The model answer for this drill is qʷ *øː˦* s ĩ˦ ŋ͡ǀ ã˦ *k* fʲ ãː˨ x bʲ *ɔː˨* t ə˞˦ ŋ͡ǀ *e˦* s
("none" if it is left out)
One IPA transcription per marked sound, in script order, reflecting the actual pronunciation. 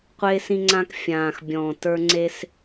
eː˦, k, ɔ̃ː˨, e˦

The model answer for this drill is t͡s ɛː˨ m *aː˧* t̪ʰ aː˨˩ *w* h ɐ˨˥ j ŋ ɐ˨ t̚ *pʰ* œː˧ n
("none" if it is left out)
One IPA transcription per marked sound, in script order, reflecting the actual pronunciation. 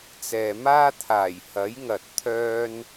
aː˥, j, t̪ʰ

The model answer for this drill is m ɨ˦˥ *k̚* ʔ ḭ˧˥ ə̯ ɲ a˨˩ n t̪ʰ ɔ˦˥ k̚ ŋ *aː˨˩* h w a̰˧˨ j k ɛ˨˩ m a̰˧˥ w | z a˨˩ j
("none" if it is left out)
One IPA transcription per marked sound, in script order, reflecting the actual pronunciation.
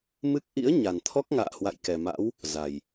k̚, a̰ː˧˨

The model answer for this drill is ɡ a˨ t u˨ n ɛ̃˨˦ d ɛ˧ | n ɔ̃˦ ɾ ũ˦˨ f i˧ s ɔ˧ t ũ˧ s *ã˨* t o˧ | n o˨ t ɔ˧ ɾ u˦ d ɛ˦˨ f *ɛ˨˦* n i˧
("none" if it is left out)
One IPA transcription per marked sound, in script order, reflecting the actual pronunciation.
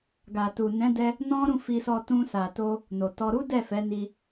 a˨, ɛ˨˦

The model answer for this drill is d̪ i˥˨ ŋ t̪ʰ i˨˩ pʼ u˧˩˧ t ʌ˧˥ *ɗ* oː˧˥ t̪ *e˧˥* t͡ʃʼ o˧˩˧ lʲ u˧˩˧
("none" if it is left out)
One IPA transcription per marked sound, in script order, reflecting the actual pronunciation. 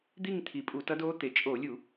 d, e˩˥

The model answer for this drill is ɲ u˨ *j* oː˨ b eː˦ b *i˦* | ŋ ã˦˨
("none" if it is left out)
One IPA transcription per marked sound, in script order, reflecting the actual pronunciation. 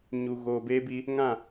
ɣ, i˦

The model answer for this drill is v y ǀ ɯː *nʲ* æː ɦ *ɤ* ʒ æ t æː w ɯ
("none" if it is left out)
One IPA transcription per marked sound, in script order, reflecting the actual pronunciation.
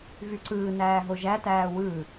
n, o

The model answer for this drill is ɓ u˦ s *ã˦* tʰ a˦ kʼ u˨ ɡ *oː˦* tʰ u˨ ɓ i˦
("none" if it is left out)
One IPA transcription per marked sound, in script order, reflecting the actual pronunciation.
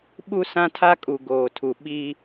ã˦, oː˨

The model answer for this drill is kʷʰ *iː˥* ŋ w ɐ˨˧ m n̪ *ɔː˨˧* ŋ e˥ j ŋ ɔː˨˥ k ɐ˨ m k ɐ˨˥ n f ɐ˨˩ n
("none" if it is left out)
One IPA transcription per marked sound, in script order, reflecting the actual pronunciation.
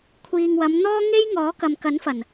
iː˨, ɔː˥

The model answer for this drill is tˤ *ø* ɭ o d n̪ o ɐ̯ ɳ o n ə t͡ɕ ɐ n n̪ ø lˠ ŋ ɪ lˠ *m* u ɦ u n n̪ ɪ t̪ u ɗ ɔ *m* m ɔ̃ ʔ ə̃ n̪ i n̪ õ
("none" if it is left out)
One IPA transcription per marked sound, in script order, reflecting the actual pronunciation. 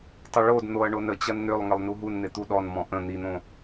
ə, n, n

